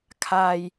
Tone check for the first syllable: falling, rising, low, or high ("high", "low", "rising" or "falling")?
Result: low